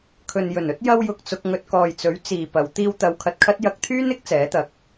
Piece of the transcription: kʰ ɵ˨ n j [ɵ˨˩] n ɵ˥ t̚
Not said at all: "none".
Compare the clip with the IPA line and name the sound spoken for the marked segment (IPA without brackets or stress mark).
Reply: ɵ˨˩